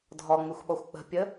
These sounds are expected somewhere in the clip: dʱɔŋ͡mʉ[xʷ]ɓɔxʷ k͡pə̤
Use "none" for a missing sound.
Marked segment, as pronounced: xʷ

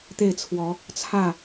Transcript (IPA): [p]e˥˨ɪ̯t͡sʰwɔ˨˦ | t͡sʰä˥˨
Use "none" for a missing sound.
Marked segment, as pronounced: t̪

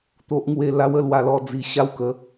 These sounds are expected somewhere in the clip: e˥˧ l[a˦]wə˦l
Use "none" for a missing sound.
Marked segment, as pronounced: a˦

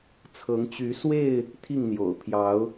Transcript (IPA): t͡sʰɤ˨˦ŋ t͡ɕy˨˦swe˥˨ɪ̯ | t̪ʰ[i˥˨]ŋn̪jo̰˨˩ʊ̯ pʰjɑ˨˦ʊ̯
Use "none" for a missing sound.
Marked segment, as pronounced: i˥˨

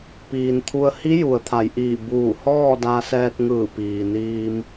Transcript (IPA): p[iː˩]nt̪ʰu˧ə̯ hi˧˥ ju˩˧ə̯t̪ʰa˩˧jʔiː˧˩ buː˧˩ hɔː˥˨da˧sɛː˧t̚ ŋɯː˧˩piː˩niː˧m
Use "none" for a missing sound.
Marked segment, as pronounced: iː˩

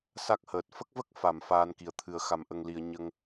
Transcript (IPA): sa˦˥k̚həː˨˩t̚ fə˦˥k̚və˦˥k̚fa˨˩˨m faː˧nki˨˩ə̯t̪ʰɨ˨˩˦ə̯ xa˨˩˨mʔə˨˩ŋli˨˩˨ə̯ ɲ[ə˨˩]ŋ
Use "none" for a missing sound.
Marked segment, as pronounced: ə˧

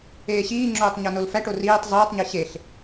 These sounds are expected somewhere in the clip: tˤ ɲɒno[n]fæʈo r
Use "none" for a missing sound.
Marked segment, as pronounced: l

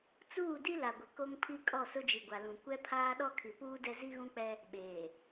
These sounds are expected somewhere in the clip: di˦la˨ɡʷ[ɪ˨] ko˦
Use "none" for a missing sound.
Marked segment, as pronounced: ɪ˨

